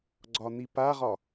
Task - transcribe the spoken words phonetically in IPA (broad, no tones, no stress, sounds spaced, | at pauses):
ɡ͡ǀ ɒ n̪ i p a ʁ ɒ